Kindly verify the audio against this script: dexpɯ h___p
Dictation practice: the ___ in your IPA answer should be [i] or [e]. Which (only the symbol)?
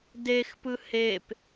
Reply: e